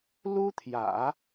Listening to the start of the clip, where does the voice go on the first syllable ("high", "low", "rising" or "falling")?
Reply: high